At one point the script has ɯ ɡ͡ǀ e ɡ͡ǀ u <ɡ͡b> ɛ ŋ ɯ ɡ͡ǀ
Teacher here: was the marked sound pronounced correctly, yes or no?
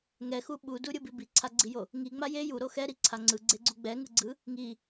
yes